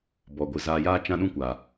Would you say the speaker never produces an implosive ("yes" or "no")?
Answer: no